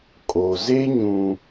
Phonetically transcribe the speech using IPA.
kʼo˨ ze˦ɲũ˨

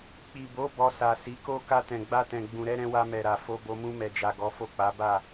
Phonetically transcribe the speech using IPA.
k͡pi˨bo˨˦ bɔ˧ sa˨ si˨˦ko˦ ka˧tɛ̃˨ɡ͡ba˧tɛ̃˨ ɡ͡bũ˨ɾɛ˨˦ɾɛ̃˧ wa˧mɛ˨ɾa˨ fo˧bo˧ mũ˧mɛ˨d͡ʒa˨ ɡɔ˨˦fo˦˨k͡pa˨˦ ba˦˨

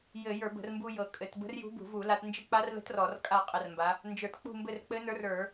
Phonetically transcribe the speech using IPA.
jɘ˧˩˧jə˞˧˩˧bə̤˧˩˧r mbu˧jɤ˨˩ kʼɘ˩˧t bə̤˧˥rjṳ˧˥bṳ˧˩˧ vu˧˩˧la˧tnd͡ʒə˥˨ k͡pa˧˥rlə̤˧˥t rɔ˧˩˧rkʼa˥˨ qʼə˧˩˧rmba˩˧ | nd͡ʒə˞˧˩˧t k͡pṳ˥˨mbɘ˥˨r k͡pɘ˧˥nə˞˧˥rə˞˧˩˧

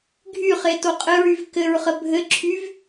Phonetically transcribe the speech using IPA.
ɡʱyχe toqʼɘɹyv kɘɹχə bʱɘǁʰyv

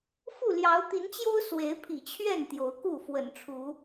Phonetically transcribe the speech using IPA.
fu˥˨ljɑ˨˦ʊ̯t̪i˨˦nt͡ɕjo˦ʊ̯ swe˨˦ɪ̯pʰḭ˨˩t͡ɕʰɥɛ˥˨n t̪jo˨˦ʊ̯ku˥˨ fwə̰˨˩nʈ͡ʂʰu˨˦

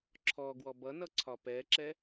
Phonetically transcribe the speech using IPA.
ǁʰɔɡwɔ bʌnʌ ǀʰɒpɛǁɛ

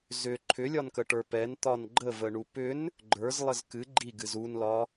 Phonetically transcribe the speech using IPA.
zʏ ǃʰʏlʲɒnkəʈə˞ pɛnt̪ɒn ɡ͡ǃəvəɳu pʏn | ɡ͡ǃə˞zlˠəz kɨ ɡ͡ǃiɡɨz unlɒ

